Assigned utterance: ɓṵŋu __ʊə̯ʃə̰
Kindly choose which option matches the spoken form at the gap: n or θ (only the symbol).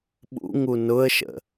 n